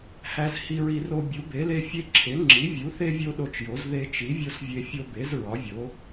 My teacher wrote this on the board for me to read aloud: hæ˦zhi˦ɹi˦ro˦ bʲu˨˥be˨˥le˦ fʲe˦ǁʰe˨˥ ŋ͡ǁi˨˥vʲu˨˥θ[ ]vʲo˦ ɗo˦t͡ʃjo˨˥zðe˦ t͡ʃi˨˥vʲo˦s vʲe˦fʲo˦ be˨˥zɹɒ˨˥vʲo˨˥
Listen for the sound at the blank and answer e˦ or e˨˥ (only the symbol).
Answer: e˦